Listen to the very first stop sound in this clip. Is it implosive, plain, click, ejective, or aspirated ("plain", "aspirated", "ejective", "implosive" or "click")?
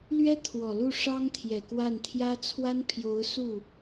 aspirated